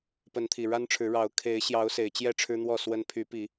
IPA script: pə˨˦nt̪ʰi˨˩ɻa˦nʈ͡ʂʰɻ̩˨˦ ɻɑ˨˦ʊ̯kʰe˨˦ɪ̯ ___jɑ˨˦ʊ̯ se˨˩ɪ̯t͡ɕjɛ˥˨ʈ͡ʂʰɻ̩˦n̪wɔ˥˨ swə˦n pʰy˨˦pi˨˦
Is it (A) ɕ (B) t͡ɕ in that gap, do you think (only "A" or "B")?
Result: A